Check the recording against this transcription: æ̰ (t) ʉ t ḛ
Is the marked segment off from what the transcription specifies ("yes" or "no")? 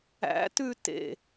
no